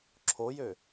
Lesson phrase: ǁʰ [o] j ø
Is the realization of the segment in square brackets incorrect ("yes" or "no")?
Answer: no